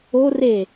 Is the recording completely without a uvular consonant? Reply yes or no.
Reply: yes